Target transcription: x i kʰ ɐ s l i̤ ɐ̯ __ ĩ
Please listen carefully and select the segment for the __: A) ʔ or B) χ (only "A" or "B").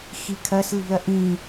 A